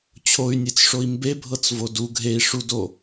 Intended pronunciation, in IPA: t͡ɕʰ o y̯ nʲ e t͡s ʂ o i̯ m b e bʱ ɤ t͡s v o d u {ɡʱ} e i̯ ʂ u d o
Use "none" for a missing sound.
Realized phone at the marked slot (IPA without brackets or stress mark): ɡʱ